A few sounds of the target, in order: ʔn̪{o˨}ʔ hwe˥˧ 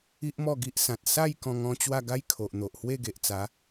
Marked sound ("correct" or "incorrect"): correct